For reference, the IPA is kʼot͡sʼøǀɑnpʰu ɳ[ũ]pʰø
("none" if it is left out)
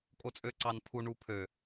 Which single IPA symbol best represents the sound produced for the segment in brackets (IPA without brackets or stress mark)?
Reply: u